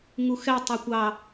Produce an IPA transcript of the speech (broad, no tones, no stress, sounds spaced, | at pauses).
ŋ u x ɛ tˤ ɛ kʷ ɑ